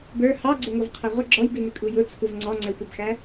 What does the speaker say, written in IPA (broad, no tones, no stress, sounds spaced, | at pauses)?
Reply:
b ə˞ h ɑ ɡ͡ǀ ə ŋʷ ʌ v qʰ æ ʁʷ ə ɡ͡ǁ ɔ j b i n ɪ kʼ u j ʊ t͡sʰ u v ŋ͡ǀ ɔ ŋ͡ǀ ɛ xʷ æ b x æ